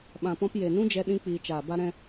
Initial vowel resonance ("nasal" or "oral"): nasal